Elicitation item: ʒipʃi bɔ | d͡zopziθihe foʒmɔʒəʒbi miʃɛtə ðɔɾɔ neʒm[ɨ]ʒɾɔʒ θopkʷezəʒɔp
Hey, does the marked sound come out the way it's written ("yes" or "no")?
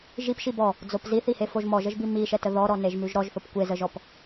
no